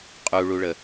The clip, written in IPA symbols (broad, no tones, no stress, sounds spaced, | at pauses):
qʼ u ɭ u ɭ ə